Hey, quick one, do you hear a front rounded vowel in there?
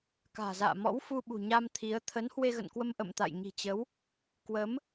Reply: no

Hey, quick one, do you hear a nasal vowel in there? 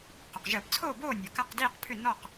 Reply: no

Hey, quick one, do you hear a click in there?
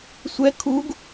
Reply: no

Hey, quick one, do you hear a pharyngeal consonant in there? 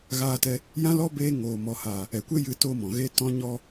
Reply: no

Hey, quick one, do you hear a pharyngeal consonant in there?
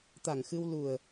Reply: no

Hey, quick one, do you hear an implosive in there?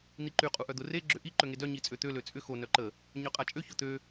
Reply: no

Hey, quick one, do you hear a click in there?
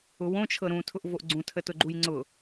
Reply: yes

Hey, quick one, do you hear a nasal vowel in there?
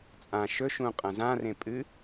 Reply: yes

